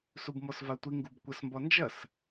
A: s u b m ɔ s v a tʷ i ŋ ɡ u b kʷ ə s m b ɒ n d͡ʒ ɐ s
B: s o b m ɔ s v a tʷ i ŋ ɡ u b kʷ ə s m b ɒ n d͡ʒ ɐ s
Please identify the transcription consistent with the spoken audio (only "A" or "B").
A